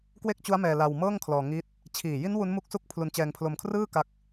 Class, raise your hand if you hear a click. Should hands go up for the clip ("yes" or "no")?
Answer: no